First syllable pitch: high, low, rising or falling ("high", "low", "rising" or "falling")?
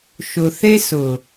low